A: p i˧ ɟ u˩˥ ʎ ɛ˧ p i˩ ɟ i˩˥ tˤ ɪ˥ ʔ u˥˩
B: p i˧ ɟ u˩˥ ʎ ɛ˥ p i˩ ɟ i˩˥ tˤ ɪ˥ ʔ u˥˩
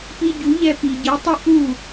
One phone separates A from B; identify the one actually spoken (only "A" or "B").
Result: A